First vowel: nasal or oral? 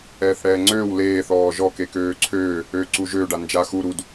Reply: oral